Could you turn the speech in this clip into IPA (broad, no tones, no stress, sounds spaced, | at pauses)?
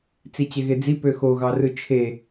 t͡s i t͡ɕ e ɣ e d͡z i p ø x o ɣ ɑ r ɯ t͡ʃʰ e